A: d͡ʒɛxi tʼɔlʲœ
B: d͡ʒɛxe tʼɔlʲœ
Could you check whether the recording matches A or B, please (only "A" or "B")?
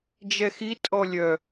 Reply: A